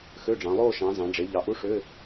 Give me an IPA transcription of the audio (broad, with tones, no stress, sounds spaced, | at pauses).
x ø˧˥˧ ɖ͡ʐ ɑ̃˩˧ lˠ oː˥˧ ʃ ɑ̃˩˧ z ɑ̃˩˧ ɖ͡ʐ e˩˧ ʎ ɑ˩˧ ʔ u˧˥˧ ʂ ø˧˥˧